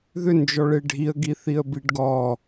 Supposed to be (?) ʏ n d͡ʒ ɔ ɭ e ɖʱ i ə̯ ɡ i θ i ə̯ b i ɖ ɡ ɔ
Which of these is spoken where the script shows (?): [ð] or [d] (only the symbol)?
ð